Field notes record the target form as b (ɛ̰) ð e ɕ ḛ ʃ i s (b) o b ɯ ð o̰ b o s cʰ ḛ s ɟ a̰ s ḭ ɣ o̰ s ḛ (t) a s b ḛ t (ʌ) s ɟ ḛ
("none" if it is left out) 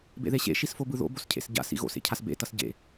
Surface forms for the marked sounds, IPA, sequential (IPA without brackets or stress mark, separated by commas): ḛ, f, cʰ, ʌ